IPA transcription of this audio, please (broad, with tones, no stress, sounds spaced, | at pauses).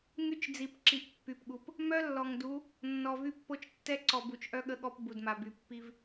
ŋ y˦ t͡ʃ d͡z i˨ p ǁ i˨ ʔ pː y˨ p ɠ u˨ p | m œ˦ lː ɔ˨ ŋ d u˨˦ | nː ɔ˨ v y˦ pː o˦ t͡ʃ tː ɛ˦ ǀ ɔ˨ b u˨ t͡ʃ ʔ œ˦ ɠ ə˦ ɠ ɔ˦ p b u˨ d m a˨ b y˨ pː i˦ v